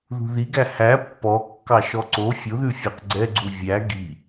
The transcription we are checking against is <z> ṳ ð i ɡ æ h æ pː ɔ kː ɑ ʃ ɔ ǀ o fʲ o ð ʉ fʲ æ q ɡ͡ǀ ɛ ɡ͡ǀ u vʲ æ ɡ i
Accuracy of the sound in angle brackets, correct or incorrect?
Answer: incorrect